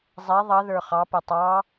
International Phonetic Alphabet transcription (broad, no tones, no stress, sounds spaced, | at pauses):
zˤ ɛ ðˤ ʌ ð ə˞ χ ɑ p ə tˤ ɑ